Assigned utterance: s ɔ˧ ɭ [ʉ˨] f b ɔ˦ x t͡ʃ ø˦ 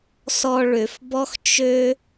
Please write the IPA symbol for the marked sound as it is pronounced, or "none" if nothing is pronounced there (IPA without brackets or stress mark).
ø˨